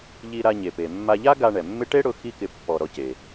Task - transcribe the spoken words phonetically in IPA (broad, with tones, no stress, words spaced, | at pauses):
ʎi˧ɾa˧ɲe˩pe˩ mːa˧ʎa˥ɡa˧ ɳɛ˩mːɪ˥ ʈe˥ɽʊ˧ xi˥kɪ˧ pːɔ˧ ɾɔ˧ce˩